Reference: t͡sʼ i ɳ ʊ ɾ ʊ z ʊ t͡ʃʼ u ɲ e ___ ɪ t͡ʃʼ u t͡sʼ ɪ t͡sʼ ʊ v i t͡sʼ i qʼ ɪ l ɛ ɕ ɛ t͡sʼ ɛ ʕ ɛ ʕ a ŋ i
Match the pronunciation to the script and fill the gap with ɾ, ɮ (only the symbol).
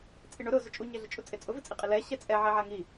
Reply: ɮ